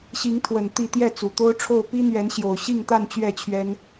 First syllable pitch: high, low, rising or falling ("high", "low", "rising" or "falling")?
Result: rising